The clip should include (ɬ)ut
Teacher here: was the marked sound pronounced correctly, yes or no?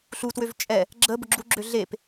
yes